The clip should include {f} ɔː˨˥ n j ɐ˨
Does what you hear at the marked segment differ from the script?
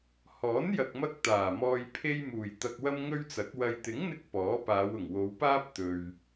yes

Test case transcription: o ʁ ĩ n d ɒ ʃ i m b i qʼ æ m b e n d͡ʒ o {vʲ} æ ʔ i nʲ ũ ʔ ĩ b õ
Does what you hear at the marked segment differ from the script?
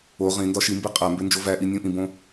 yes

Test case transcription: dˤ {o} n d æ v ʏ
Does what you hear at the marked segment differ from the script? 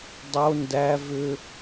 no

